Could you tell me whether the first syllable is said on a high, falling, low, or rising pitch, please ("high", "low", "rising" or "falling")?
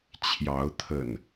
rising